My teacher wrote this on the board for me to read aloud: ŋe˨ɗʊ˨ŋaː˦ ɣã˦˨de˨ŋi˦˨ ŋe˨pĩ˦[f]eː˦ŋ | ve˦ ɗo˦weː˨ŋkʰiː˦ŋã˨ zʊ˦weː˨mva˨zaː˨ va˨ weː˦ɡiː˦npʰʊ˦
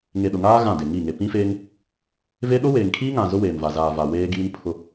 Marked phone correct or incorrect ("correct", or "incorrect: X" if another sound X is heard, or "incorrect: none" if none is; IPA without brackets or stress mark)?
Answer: correct